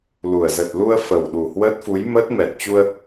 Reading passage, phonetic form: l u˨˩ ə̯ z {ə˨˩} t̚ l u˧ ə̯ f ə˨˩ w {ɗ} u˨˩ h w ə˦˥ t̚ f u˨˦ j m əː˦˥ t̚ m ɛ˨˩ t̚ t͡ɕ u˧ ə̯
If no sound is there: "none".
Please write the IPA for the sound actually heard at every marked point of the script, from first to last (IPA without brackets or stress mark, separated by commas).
ə˨˩, ɗ